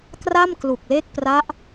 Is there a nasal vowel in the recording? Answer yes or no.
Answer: no